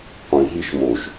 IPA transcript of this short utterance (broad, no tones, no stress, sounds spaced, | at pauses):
qʷ ĩ ɦ i ʃ m o ʃ